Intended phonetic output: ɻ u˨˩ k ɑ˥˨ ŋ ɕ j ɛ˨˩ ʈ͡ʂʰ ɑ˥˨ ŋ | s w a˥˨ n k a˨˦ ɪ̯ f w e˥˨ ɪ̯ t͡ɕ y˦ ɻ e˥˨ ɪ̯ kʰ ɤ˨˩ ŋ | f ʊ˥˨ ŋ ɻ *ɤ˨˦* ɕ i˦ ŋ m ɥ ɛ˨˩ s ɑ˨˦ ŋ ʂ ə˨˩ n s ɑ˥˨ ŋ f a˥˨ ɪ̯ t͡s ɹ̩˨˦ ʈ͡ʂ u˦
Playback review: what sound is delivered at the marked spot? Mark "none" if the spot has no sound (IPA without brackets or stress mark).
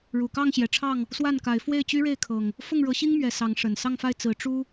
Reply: ɤ˨˦